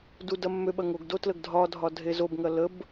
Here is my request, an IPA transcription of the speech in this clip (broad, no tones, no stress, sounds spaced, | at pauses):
d u d ɐ mː ø ɓ ɐ ŋ o ɡ d o t l ə ɡ dʱ ɒ dʱ ɒ dʱ e z o b ŋ ɐ l ə b